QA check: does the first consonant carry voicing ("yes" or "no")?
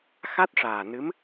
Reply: no